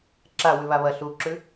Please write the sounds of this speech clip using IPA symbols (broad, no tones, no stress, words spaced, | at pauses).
ǁa wʉβaβɐ ɬuǁʉ